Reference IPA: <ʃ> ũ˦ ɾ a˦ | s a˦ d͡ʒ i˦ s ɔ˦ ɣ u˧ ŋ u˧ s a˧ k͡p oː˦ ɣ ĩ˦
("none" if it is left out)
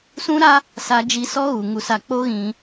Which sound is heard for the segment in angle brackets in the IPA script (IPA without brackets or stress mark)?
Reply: s